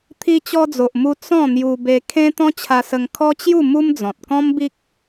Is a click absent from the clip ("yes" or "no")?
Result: yes